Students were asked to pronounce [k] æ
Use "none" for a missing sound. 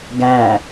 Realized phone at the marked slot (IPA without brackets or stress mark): ɡ